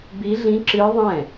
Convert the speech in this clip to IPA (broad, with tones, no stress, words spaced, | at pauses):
bi˦˥ɮĩ˦˥ǁɨ˦˥ðˤɛ̃˥˩